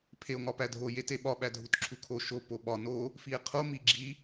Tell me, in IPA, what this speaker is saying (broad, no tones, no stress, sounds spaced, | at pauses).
pʰ e o̯ ŋ ɒ p æ dʱ o j e t e ɓ ɒ ɓ æ dʱ u t ǁʰ u kʰ o ʃ o p o ɓ ɒ n o | f i e̯ qʰ o m i ɡ͡ǁ i